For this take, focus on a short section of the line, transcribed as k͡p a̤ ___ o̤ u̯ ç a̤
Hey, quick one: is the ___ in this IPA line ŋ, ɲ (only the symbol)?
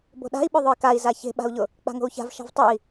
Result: ŋ